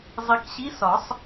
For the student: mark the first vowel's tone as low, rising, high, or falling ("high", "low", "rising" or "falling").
low